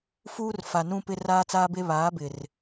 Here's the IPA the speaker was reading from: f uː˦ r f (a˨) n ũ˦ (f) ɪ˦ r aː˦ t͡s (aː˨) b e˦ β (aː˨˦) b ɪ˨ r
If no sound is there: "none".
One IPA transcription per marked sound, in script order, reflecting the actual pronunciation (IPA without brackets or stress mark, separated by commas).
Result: a˨, p, aː˦, aː˨˦